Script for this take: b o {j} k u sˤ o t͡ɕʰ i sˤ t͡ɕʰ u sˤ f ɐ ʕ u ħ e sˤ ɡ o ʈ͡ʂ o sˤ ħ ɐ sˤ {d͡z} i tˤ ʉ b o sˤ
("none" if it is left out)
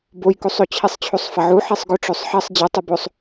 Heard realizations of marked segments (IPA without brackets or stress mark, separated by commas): j, d͡ʑ